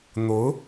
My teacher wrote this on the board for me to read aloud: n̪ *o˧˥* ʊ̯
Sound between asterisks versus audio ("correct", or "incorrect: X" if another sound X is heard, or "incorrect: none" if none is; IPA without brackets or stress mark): correct